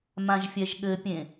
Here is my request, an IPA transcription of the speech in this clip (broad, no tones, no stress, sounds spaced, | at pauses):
m ã ʒ fʲ ɛ ʒ ɠ ɘ pʲ ẽ